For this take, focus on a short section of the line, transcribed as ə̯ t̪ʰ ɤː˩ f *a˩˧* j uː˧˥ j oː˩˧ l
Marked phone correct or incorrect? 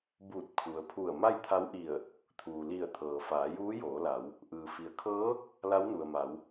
incorrect